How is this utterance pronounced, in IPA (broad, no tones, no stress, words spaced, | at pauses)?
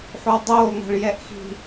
ħowdˤoːŋa̤ɭ jɛʔxi̤